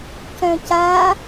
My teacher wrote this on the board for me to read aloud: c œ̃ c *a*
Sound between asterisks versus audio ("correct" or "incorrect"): correct